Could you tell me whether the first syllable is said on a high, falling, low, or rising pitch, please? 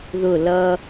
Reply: falling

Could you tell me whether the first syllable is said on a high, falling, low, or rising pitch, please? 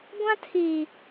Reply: high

